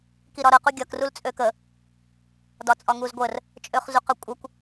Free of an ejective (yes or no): no